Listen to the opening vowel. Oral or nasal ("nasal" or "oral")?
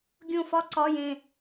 nasal